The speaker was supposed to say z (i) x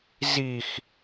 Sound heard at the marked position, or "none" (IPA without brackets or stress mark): i